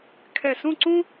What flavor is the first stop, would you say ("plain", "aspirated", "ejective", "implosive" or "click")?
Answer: aspirated